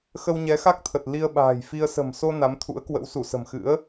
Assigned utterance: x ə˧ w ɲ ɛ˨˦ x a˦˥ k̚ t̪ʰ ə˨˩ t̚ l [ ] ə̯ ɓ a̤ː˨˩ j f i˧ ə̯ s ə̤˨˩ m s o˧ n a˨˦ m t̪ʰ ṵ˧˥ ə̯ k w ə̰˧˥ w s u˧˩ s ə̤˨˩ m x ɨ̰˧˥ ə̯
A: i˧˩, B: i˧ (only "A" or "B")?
B